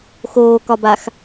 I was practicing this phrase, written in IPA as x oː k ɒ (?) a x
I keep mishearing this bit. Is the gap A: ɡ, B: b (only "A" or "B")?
B